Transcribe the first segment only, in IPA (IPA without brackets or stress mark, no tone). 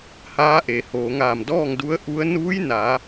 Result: h